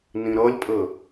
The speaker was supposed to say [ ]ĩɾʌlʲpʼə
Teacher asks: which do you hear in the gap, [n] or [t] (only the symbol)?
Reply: n